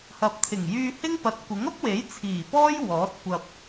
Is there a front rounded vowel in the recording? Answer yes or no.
yes